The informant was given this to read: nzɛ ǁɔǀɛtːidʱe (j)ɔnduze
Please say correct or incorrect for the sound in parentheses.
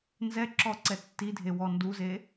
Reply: incorrect: w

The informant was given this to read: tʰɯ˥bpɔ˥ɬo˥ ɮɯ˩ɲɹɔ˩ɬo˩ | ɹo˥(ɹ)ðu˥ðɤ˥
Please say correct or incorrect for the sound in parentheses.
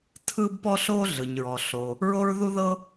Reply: correct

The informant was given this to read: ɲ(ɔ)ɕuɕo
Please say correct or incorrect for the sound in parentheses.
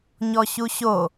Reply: correct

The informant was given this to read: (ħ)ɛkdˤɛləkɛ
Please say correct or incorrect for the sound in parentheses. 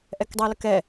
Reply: incorrect: ʔ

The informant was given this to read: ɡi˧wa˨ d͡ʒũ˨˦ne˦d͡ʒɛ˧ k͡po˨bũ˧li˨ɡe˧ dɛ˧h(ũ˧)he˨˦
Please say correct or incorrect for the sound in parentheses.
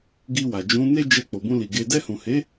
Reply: incorrect: ũ˨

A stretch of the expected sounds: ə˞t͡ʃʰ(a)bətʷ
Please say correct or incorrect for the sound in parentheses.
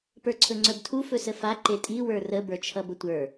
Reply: incorrect: ʌ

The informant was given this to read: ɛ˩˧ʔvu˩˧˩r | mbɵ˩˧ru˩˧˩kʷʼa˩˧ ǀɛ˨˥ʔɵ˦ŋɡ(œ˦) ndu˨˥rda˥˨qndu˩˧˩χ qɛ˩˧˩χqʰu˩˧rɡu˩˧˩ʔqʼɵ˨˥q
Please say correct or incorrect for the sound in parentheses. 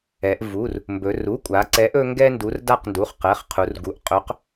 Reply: incorrect: ɛ˦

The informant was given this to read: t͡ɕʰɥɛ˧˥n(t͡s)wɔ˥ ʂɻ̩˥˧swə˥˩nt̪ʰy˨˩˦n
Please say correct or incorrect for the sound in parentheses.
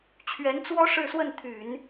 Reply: correct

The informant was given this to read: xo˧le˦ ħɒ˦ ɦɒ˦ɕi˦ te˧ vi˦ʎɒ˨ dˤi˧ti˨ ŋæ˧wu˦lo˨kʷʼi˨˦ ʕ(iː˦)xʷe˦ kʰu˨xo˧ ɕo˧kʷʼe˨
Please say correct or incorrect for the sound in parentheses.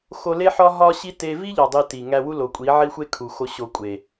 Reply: incorrect: i˦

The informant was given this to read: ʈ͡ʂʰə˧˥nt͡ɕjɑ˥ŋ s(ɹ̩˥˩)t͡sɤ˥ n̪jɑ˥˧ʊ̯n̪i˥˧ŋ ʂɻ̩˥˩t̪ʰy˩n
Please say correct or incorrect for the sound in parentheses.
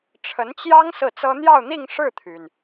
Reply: correct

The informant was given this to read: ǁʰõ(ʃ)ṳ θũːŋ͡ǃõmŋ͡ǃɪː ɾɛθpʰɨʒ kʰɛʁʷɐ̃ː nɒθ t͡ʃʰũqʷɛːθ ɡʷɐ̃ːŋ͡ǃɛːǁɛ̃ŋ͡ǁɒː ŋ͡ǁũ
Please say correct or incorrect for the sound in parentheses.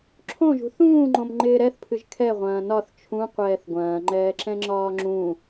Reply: incorrect: ʒ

